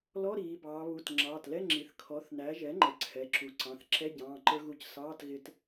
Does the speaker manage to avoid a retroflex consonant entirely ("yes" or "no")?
yes